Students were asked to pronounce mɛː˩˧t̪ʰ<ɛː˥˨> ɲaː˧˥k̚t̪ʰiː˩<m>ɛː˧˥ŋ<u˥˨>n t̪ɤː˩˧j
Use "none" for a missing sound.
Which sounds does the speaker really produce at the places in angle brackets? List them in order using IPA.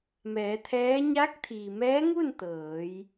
ɛː˧˥, m, u˥˨

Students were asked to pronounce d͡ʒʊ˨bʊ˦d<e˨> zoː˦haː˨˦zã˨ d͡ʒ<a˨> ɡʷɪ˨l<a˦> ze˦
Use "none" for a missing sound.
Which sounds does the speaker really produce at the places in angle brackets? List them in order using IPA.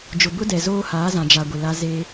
ɛ˨, a˨, a˦

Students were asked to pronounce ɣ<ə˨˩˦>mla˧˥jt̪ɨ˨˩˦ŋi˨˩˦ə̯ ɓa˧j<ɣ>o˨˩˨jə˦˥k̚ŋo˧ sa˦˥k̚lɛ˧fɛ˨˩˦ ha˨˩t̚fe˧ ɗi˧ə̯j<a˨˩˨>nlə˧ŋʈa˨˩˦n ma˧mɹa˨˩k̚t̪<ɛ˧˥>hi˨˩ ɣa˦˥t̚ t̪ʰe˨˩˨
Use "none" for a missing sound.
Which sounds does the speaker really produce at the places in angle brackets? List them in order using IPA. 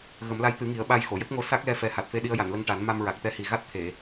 ə˨˩˦, x, a˨˩˨, ɛ˧˥

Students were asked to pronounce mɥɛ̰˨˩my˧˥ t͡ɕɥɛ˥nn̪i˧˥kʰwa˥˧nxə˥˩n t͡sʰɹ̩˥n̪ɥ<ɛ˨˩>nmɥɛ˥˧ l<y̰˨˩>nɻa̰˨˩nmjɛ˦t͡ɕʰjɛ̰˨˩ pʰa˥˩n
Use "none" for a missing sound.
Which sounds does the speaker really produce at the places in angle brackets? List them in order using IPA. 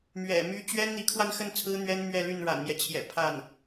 ɛ˥, y˥˩

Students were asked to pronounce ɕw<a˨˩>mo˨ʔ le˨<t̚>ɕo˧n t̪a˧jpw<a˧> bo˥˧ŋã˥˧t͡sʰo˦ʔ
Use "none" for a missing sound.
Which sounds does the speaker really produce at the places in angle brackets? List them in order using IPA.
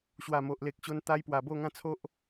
a˨˩, k̚, a˨˩

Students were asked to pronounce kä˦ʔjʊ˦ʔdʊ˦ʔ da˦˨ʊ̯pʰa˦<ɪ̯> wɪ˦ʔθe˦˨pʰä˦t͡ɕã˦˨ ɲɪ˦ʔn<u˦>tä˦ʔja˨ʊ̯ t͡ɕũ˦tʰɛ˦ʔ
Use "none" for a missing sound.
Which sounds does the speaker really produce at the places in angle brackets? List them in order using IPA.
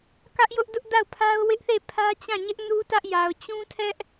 ʊ̯, u˦

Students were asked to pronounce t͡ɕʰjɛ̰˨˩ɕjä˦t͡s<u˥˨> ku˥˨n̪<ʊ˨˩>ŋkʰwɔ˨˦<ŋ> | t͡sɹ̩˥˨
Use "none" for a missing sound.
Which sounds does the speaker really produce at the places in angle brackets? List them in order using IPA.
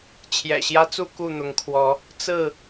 u˥˨, ʊ˨˦, none

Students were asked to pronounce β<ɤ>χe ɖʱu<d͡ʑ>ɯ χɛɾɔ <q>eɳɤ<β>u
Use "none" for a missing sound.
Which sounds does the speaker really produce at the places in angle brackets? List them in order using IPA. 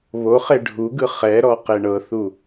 o, ɡ, q, θ

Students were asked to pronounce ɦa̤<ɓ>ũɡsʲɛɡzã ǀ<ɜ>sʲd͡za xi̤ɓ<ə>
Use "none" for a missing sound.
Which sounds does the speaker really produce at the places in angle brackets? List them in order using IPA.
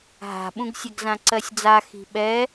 ɓ, ɜ, ɛ

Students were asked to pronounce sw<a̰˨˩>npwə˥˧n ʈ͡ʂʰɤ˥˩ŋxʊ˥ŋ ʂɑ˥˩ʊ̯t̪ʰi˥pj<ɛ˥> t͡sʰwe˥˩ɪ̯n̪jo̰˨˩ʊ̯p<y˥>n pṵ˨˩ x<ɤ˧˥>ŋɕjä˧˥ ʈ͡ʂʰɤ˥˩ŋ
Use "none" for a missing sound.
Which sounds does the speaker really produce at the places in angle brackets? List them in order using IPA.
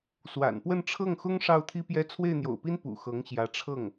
a̰˨˩, ɛ˥, i˥, ɤ˧˥

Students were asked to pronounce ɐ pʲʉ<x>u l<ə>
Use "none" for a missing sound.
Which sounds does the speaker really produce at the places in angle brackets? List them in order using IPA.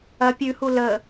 h, ə

